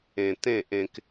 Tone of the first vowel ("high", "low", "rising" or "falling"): low